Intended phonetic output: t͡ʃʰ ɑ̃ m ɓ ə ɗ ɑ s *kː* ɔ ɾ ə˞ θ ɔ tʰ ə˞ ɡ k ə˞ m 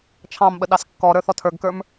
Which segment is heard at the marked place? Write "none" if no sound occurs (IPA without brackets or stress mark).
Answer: kː